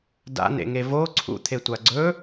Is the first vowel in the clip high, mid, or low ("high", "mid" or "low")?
low